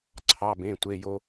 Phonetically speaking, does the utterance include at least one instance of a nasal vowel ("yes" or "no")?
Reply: yes